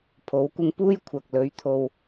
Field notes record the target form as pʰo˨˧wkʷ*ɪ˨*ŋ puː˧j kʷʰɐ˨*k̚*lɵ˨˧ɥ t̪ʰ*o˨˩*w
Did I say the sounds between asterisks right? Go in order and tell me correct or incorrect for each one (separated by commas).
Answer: incorrect, correct, incorrect